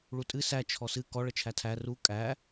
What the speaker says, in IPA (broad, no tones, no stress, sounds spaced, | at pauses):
ɭ u tʼ ɨ s æ t͡ʃʰ ɔ s ɨ k ɔ ɭ ə t͡ʃʰ æ tʰ æ r u kʼ æ